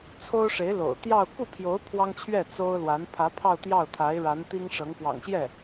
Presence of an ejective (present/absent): absent